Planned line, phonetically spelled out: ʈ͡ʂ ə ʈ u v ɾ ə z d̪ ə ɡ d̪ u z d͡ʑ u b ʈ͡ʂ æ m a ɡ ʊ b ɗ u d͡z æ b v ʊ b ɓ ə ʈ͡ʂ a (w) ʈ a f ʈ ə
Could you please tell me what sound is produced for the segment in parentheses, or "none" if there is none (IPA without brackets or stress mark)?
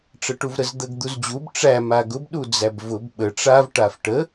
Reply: v